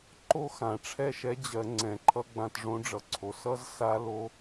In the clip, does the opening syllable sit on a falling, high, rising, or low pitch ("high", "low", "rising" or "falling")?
high